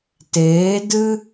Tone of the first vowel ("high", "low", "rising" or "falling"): rising